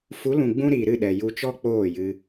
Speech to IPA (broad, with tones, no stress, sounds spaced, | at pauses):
f u˨˦ l ũ˨ ɡ͡b ũ˧ ɾ i˨ ɾ ɨ˦˨ ɗ ɛ˨ j u˧ t͡ʃ ɔ˦ k͡p oː˦˨ j ɨ˧